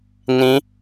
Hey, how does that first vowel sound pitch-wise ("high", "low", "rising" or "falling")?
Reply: rising